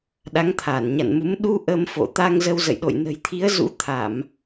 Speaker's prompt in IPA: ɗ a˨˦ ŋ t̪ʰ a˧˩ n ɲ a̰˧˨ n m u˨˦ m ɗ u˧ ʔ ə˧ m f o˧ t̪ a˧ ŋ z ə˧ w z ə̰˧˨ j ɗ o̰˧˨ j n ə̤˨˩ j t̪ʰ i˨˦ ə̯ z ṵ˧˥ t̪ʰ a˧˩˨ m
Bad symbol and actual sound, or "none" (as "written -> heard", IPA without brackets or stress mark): o˧ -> o̰˧˨